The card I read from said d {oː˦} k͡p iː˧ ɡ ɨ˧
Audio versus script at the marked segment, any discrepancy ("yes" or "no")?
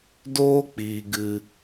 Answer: no